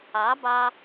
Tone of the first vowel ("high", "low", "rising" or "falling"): rising